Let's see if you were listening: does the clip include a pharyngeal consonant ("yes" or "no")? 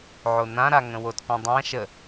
yes